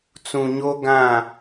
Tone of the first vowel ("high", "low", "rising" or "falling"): low